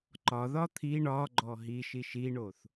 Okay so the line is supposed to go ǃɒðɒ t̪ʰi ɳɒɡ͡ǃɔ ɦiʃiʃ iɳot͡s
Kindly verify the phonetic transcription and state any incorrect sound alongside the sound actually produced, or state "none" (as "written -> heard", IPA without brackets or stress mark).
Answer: t͡s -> θ